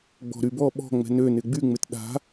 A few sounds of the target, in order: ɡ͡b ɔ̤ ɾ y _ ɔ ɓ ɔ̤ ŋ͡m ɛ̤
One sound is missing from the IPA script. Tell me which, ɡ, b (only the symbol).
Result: b